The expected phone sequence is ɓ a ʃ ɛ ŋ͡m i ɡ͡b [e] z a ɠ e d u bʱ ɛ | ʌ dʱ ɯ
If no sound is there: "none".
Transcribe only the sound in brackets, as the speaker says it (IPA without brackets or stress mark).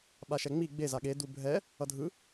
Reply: e